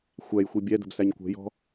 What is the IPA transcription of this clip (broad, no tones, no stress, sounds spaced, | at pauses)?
xʷ æ j xʷ i bʲ ɛ d ə̤ b s æ ɲ kʷ ɛ̤ j ɔ̤